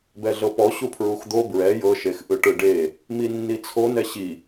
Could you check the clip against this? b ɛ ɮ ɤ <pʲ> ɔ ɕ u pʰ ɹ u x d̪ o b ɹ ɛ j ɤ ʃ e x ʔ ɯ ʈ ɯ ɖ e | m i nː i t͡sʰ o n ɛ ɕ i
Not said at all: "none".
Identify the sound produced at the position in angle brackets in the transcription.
p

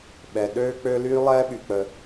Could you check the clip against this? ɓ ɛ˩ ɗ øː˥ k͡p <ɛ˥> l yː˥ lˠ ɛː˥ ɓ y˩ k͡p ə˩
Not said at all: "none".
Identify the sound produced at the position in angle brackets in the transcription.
ø˥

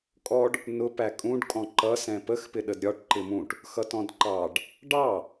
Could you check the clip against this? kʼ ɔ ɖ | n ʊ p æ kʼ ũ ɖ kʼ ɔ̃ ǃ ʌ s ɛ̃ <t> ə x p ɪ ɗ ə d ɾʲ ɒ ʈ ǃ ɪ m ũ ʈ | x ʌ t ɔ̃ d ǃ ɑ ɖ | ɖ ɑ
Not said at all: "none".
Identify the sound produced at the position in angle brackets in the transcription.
p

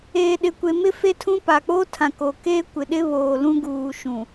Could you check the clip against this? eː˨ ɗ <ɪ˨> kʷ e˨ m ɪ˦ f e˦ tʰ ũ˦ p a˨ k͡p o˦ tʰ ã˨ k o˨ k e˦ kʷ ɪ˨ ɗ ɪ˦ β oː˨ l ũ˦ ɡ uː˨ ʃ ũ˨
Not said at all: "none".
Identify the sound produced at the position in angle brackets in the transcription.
ɪ˨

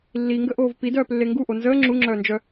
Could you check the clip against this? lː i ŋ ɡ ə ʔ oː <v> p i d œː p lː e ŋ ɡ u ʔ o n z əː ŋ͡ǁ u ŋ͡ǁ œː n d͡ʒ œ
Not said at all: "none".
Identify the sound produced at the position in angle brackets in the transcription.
v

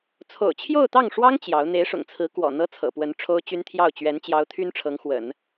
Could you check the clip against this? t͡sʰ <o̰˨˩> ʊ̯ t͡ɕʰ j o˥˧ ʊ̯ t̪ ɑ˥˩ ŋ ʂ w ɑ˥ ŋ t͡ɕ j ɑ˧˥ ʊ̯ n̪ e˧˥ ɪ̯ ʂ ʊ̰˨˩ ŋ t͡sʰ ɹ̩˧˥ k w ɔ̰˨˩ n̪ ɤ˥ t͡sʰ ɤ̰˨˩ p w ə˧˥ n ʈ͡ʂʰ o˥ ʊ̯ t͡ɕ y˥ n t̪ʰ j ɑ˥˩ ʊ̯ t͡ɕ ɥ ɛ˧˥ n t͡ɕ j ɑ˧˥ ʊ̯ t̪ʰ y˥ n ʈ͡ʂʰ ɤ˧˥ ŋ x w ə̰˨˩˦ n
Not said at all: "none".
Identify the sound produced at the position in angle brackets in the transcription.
o̰˨˩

